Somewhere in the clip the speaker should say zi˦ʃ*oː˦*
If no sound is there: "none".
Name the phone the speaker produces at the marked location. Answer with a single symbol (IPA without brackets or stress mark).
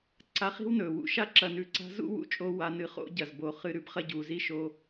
oː˦